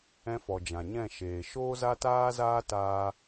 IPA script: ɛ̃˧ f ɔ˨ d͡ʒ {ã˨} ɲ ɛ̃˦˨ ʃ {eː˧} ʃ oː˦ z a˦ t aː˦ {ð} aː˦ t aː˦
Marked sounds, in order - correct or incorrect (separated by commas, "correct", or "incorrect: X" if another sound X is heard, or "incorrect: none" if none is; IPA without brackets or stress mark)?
correct, incorrect: eː˨, incorrect: z